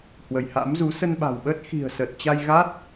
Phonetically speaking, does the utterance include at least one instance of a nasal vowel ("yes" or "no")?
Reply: no